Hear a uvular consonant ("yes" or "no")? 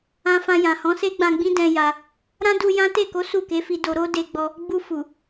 no